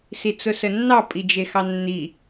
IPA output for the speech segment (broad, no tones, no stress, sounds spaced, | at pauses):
s i t͡s ʊ s ə nː ɑ pʼ i d͡ʒ e x ɑ nː i